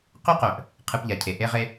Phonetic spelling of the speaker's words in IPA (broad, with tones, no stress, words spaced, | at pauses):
qy˦qœ˩ʔ | qʰɨ˨pʎa˩cʰe˩ ʔe˦ʁe˦